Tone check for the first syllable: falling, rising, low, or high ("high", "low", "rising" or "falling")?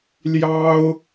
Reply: high